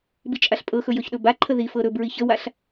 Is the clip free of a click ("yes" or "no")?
no